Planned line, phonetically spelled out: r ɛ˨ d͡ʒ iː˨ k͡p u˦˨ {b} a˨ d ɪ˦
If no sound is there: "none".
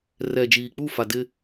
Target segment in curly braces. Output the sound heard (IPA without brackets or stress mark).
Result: f